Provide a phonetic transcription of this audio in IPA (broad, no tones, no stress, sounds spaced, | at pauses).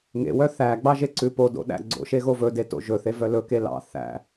ŋ ḛ w œ θ æ ɡ͡b ɑ ʒ e ǀ ʉ p o d o̰ ɗ æ̰ ɡ͡ǀ o̰ ʃ e ɣ o v ɵ d e t o̰ ʒ ɵ θ e v œ l ɵ k e l ɑ̰ θ æ̰